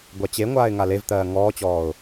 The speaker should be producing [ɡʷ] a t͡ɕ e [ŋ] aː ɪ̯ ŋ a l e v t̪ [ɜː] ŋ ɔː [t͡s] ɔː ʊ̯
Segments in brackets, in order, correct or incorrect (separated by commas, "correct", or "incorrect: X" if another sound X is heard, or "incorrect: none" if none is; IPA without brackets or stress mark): correct, incorrect: ŋʷ, correct, incorrect: t͡ɕ